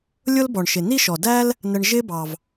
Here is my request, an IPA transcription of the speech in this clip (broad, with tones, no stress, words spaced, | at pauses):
lʲʊ˦lbɔ˩ɳʃɪ˩ ni˥ʃɔ˩dæ˥l | nə˨ɳ ʒɪ˦bɑ˩v